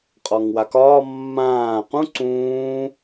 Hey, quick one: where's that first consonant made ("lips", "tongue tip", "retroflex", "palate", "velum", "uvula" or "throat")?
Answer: uvula